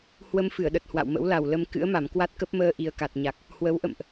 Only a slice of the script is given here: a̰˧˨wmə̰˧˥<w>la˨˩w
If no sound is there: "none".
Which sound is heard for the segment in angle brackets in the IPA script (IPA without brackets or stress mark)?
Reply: w